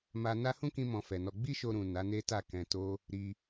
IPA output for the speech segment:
m a˧ n a˦ h ũ˦ k ĩ˧ m ɔ̃˨ f ɛ˨ n ɔ˧ ɡ͡b i˦ ʃ o˧ ɾ ũ˨ n a˨˦ n e˦ t a˦˨ k ɛ̃˧ t o˦ | ɾ i˧

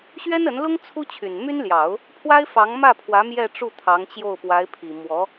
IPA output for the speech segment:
ɕ ɥ ɛ˥ n ə˧˥ n l ʊ˥ ŋ t͡sʰ u˥ t͡ɕʰ y˨˩ n m y˥ n l j ɑ˨˩˦ ʊ̯ | pʰ w a˥ ɪ̯ f ɑ˧˥ ŋ m ä˥˩ pʰ w ä˧˥ m j ɛ˥˧ ʈ͡ʂ u˥˩ t̪ʰ ɑ˧˥ ŋ t͡ɕ j o˥˩ ʊ̯ p w a˧˥ ɪ̯ pʰ i˨˩ m w ɔ˧˥

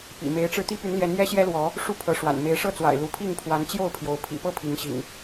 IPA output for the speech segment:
p ḭ˨˩ m e˨˦ ɪ̯ ʈ͡ʂ ɻ̩˧ t̪ i˦ p y˨˦ n l j ɛ˨˦ n j ɛ˦ ɕ j ɛ˦ l w ɔ˨˦ | ʂ u˦ pʰ ɤ˨˦ ʂ w a̰˨˩ n m e˨˦ ɪ̯ ʂ ɤ˥˨ t͡s w a̰˨˩ ɪ̯ l u˨˦ pʰ i˥˨ ŋ pʰ w a˨˦ n t͡ɕ j o˥˨ ʊ̯ pʰ j o˨˦ ʊ̯ pʰ ḭ˨˩ p ɤ˥˨ pʰ i˨˦ ŋ ɕ ḭ˨˩ ŋ

